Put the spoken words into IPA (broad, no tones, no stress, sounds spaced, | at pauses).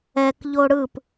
ɛ k ʎ o ɽ ɯ p